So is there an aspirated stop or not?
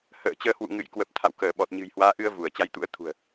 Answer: yes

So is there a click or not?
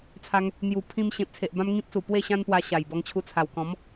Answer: no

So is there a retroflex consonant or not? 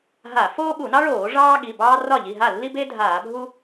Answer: yes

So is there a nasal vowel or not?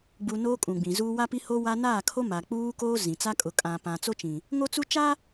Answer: yes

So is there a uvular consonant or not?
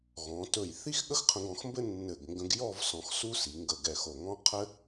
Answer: yes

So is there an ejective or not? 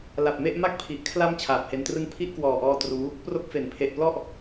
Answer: no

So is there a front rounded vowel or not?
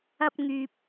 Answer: yes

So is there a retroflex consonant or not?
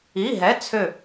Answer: no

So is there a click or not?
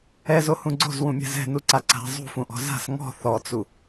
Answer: yes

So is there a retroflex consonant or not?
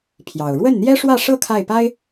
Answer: yes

